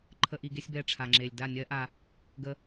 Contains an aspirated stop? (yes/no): yes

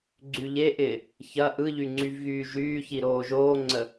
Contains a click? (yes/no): yes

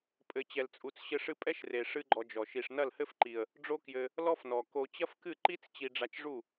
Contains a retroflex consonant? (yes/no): yes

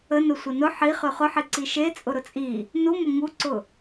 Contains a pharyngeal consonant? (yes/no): yes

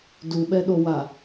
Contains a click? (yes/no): no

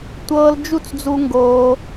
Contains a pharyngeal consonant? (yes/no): no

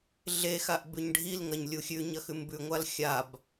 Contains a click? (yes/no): no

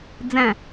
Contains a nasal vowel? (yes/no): yes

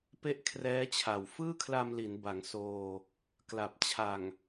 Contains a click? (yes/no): no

